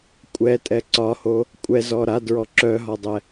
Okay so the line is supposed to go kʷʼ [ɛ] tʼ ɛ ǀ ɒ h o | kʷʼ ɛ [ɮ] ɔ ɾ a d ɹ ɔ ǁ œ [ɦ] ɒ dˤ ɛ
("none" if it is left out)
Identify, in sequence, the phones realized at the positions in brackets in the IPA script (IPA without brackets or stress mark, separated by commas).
ɛ, z, ɦ